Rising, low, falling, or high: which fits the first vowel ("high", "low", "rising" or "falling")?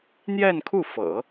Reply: falling